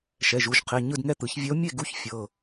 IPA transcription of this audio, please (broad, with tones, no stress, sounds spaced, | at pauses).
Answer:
ʃ ɛ˩˧˩ ʒ u˩˧˩ ʒ qʰ e˩˧˩ ɲ ɯ˥˨ d ŋ ɛ˥˨ t̪ ɯ˨˩˦ ç vʲ ɛ˧˥ o̯ mʲ e˥˨ ɡ u˧˥ ç fʲ ɤ˩˧˩